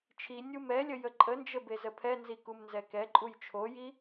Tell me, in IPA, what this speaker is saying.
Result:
t͡ʃʰ i nʲ u m ɛ lʲ ə j ə ǃʼ ə n d͡ʒ ə b e z ə pʰ ɛ n z i k u m n z ɛ k ɛ ǃʼ u j t͡ʃʰ o j i

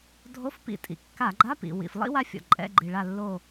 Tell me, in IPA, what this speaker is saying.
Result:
dʱ o˧˥˧ f p ḭ˧˩˧ tʼ ḭ˩ kː a˧˩˧ ɡ͡ǃ a˧˥˧ p ḭ˩ w ḭ˩ f lˠ ḭ˥ w a˥ fʲ ɔ̰˩ ǃʼ ɛ̰˧˥˧ ɡ͡ǃ i˩ ɭ a˧˩ lː o˧˩

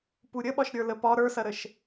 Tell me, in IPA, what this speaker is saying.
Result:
p u ɾʲ ə ɓ ɒ ʃ ɾʲ ə˞ l ə p ɒ ɾ ə˞ s ɐ ɾ ə ʃ

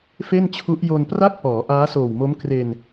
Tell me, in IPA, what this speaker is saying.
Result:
f e˥˩ n t͡ɕʰ u˦˥ ʔ j o˧ n p r a˥˩ k̚ p ɔː˩˦ ʔ aː˦˥ s oː˨˩ w m o˦˥ m k r e˧ n

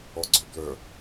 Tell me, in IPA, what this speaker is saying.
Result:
ɔ ɡ͡ǀ ø b l œ

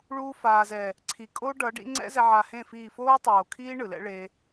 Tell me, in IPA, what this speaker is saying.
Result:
ɭ uː˦ f aː˨ z ɛ˨ | ǀʰ i˨ kʼ o˦ ɖ ʌː˨˦ ɖ ḭ˦ ŋ͡ǀ ɛ̰˦ z ɛ˧ ʕ a˧ h ẽ˦˨ f iː˦˨ f oː˦ tˤ oː˨ kʰ iː˦ ɳ ɯ˨ l ɛ̰˦ ɭ e˧

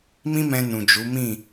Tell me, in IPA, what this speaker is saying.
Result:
m ĩ˦ m ɛ̃˧ n ũ˨ d͡ʒ u˨˦ m ĩ˦˨

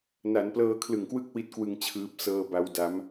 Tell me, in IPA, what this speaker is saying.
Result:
n a˩˦ n p l ɤː˧ kʰ l ɯ˨˩ ŋ k w ɯ˥˩ k̚ w i˦˥ t̚ k w ɯ˧ ŋ t͡ɕʰ ɯː˦˥ p̚ s ɤː˧ b a˦˥ w d a˦˥ m

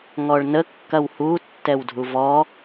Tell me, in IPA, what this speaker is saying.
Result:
ŋ ɔ ɭ n ə kː ɐ w h u tː ɛ w dʱ u v ɔ

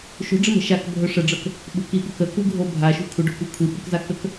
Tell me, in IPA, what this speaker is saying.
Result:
ʃ o̤ ɖ͡ʐ ə m ə̤ ʃ a k bʱ ɵ ʂ ə ɖ͡ʐ ɤ k | ɓ ṳ k i ɓ ɵ k ə k u ɡʱ o bʱ a ʃ ṳ kʷʰ ə ɖ o̤ kʷ i kʷʰ i ɓ ɵ k z a k ə k

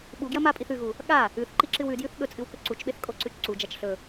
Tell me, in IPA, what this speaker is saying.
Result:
ɓ u ɡ j ɐ m a pʼ i θ ʉ ɣ u | ɠ a | ʉ θ ǃ i ǁ ɨ w ʉ d j ʉ θ ɠ ɵ t͡sʼ ɨ w k ɵ ǀ u t͡ʃ ɓ e θ kʼ o ǀ ʉ t͡ʃ ǀ u d͡ʒ a t͡ʃ ɬ ɵ

